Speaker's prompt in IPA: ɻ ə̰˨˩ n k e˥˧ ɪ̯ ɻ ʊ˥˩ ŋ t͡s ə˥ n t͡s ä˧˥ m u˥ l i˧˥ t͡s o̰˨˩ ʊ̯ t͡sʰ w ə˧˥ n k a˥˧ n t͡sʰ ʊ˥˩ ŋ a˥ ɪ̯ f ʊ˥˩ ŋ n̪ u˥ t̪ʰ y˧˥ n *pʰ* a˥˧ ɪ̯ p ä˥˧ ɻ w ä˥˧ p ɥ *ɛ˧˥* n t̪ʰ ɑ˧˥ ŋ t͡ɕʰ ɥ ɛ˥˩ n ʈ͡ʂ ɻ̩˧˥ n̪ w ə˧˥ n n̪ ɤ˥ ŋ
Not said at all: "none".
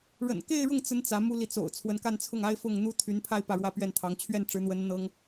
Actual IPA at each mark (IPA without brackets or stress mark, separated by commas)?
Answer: pʰ, ɛ˥˩